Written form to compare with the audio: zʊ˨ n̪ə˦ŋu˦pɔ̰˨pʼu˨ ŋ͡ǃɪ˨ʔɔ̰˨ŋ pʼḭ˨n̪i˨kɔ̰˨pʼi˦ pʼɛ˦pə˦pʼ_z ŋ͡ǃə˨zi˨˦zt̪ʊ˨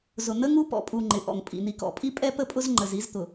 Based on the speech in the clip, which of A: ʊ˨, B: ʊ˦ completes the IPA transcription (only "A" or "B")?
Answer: B